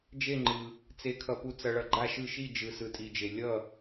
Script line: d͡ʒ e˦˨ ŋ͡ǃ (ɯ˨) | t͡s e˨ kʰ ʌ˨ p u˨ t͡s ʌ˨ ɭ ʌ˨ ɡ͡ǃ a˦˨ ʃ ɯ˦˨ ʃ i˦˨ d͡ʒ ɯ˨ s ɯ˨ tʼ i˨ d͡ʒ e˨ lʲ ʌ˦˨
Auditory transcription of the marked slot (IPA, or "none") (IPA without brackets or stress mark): ɯ˨